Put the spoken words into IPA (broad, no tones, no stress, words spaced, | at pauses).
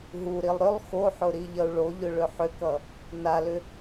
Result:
ɦuɾilˠ ɾʏlˠ xoħʊ ɾiʎʌu̯ɭoʎʊ ɭʏħʏkʌ | nalʏ